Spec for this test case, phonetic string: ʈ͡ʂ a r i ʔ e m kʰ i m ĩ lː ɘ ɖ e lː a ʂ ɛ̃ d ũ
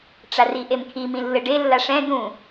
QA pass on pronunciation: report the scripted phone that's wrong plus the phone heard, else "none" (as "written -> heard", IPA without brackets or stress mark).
none